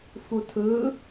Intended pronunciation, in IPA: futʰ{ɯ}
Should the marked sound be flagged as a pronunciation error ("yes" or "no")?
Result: no